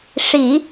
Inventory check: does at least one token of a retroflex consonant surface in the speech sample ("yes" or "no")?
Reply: yes